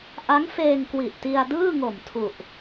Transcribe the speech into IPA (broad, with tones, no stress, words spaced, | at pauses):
ʔa˦˥ŋfeː˧ŋkwi˨˩ʔ ti˧a̯ dɯː˥˩ŋo˨˩mtʰu˨˩ʔ